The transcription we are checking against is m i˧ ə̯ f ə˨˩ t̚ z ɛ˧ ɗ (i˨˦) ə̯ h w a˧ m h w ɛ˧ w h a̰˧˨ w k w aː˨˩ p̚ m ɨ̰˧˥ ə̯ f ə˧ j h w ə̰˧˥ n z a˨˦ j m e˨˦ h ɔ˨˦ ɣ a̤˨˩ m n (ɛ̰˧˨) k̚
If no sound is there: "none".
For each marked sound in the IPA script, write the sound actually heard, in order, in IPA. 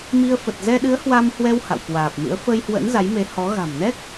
ɨ˨˦, ɛ˦˥

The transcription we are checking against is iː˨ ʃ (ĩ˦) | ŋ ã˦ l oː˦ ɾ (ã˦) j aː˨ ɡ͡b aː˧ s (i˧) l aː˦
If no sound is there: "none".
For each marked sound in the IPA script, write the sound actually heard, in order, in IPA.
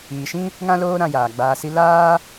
ĩ˦, ã˧, i˦

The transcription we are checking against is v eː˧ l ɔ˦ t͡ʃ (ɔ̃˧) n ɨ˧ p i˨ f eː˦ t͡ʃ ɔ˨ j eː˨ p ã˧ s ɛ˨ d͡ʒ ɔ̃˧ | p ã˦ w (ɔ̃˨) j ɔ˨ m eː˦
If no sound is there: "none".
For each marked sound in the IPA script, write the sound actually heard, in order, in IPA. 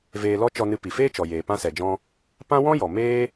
ɔ˧, ɔ̃˦

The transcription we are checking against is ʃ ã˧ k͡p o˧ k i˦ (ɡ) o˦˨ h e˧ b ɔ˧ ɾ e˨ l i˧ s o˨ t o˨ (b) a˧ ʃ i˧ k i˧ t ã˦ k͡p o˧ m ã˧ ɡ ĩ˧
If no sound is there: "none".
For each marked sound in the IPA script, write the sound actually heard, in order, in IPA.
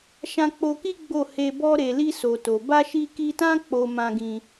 ɡ͡b, b

